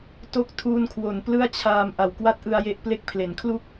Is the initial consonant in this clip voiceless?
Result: yes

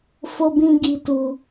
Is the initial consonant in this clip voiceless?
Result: yes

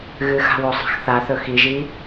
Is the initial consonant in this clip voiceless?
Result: no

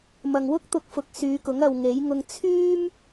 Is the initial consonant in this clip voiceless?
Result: no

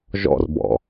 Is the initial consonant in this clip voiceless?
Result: no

